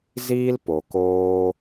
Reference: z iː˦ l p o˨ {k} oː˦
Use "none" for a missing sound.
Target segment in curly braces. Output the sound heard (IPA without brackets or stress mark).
k